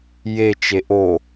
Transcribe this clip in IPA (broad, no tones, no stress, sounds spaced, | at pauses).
j e t͡ʃ e ʔ o